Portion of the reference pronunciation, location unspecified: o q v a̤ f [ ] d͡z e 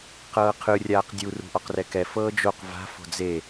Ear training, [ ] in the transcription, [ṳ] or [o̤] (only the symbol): o̤